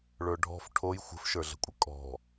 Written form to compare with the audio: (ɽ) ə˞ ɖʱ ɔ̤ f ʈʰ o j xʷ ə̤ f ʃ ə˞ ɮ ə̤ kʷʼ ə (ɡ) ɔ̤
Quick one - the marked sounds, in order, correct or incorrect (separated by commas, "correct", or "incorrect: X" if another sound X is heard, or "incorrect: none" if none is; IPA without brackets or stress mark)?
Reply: incorrect: ɭ, incorrect: kʼ